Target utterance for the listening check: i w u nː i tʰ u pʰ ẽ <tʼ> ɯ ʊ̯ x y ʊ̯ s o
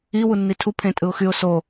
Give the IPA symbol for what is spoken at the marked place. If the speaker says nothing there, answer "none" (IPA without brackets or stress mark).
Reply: tʼ